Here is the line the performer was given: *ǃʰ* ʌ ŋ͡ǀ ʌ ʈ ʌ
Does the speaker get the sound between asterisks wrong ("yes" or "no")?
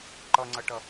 yes